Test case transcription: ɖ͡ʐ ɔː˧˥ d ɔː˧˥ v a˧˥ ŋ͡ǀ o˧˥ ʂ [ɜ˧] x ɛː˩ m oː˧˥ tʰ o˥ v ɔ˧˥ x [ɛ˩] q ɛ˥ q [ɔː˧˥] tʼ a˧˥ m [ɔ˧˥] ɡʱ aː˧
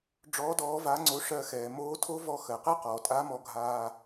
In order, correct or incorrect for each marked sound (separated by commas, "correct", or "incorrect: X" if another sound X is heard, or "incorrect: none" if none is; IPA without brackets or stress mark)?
correct, incorrect: ɜ˩, incorrect: ɔː˩, incorrect: ɔ˧